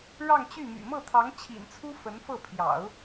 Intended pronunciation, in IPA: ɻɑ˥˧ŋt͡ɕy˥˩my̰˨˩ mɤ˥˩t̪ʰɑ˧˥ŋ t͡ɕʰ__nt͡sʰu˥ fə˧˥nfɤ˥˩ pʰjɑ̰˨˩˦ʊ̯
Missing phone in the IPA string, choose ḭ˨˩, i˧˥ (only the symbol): ḭ˨˩